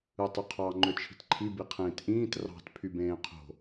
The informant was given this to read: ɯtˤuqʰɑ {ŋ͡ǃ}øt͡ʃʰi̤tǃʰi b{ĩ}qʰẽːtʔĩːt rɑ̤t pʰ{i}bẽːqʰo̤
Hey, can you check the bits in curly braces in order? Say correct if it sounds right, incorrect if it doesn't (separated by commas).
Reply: correct, incorrect, incorrect